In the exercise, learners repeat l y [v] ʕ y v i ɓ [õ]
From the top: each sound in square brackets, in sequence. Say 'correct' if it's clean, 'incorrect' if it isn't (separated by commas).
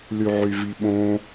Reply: incorrect, correct